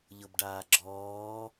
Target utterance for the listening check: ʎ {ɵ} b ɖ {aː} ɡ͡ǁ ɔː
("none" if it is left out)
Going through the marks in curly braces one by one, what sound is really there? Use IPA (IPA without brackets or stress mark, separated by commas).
ɤ, aː